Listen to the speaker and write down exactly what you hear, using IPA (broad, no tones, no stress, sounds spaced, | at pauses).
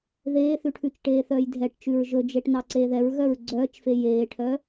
ð eː θ ʉ ʈʰ ʉ t͡ʃ ʈ eː θ œː j dʱ ɛ ʈ t͡ʃ ʉ ɹ ʒ ɵ d͡ʒ e ʈ n ɑ ǀ eː ð ɛ ɹ ɣ œ ɹ ɡ͡ǀ œː t͡ʃ f e j eː ʈʰ œ